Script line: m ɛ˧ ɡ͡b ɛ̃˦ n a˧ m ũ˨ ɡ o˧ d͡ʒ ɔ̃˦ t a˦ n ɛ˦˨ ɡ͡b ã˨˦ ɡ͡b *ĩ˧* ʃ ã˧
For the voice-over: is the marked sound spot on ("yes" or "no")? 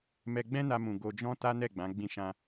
yes